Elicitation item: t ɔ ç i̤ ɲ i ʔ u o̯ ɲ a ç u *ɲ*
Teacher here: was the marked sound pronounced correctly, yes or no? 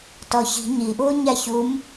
no